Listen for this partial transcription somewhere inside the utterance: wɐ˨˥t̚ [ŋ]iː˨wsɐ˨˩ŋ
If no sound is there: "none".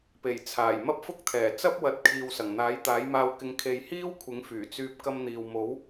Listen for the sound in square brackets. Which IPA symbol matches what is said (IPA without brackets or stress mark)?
kʰ